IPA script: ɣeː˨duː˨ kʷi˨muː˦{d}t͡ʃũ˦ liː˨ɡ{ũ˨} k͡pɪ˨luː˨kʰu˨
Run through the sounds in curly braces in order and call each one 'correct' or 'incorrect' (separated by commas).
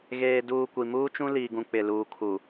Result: incorrect, correct